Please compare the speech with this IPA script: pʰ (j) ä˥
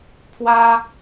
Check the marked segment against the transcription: incorrect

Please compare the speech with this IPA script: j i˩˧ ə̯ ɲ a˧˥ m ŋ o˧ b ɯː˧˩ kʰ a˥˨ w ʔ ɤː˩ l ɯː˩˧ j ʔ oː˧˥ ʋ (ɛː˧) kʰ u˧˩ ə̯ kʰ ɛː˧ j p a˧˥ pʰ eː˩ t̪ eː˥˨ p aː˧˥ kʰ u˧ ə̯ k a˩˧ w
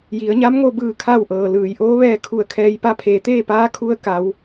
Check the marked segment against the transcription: correct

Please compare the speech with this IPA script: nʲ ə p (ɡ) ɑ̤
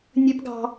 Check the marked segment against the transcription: correct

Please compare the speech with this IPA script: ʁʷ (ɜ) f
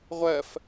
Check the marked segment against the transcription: correct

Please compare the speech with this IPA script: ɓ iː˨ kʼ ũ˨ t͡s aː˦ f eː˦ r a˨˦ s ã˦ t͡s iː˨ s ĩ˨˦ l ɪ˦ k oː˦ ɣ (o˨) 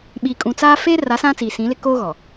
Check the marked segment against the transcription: incorrect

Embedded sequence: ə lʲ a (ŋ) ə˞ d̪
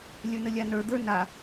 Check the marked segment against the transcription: incorrect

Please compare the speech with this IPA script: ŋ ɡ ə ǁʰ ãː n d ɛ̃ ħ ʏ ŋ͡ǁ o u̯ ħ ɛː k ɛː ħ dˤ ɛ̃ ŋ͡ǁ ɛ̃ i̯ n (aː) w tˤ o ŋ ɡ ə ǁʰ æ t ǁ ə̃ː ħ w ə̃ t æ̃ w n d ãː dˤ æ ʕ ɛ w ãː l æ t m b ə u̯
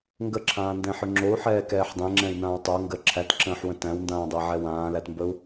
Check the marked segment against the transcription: incorrect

